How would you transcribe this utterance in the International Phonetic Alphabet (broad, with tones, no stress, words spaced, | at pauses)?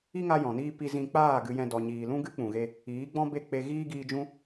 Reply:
i˦ŋa˧ jɔ̃˨niː˦ pi˧zĩ˧ k͡paː˦˨ ɡɨ˨jɛ̃˨ dɔ˨ɲiː˨lũ˦ɡɨ˦ k͡pũ˨ɣe˧ | iː˨˦ɡ͡bɔ̃˦be˦˨k͡pe˧ ɣiː˦ ɡiː˧d͡ʒũ˦